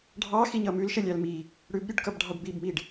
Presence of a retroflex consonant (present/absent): present